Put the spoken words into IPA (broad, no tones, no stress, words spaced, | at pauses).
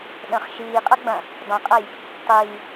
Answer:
ɗə̃χ ʃiːqʼɐ ɡ͡bɐ̃ | dˤə̃qʼɐj | tˤiː